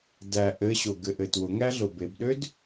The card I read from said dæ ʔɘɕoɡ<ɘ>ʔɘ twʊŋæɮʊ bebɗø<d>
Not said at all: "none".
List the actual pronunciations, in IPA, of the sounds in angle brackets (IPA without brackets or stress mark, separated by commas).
ɘ, d